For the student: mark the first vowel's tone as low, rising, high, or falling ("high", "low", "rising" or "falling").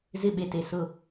falling